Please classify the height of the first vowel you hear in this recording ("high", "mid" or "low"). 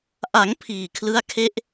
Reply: low